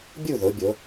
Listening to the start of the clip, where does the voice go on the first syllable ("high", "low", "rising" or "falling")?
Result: falling